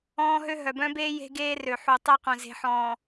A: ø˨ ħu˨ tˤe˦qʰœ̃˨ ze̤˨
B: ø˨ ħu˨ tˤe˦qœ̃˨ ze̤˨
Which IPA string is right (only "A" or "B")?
B